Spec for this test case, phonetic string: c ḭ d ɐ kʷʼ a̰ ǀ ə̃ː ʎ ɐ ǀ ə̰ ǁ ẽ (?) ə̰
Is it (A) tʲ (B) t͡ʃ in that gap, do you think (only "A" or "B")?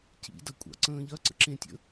A